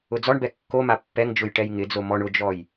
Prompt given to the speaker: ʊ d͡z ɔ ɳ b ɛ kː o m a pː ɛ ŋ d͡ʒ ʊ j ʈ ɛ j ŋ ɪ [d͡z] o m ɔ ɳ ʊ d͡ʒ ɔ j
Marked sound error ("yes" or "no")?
no